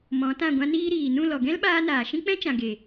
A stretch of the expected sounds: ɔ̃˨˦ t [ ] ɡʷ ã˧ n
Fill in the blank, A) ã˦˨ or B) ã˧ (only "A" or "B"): A